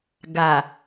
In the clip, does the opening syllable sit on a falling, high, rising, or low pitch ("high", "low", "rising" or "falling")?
low